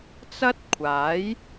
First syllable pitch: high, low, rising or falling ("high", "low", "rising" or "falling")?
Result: high